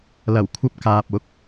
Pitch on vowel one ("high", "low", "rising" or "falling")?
low